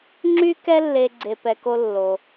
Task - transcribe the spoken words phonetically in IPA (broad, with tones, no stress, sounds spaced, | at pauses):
ŋ͡ǁ y˥ k ɛ˥ lː e˧ ɡ͡ǀ e˧ p ɛ˧ k o˥ lː o˩